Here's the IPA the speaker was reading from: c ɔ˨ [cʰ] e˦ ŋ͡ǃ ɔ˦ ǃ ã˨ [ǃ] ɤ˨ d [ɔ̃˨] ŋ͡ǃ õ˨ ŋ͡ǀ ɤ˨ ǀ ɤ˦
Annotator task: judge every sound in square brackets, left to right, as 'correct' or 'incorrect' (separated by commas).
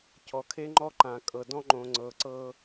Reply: incorrect, incorrect, incorrect